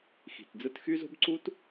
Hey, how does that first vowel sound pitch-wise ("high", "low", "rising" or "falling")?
low